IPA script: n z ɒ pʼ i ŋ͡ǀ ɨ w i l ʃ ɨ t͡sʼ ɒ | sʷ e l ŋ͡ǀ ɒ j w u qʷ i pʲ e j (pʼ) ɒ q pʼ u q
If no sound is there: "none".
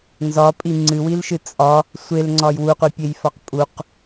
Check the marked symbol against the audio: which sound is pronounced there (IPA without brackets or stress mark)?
f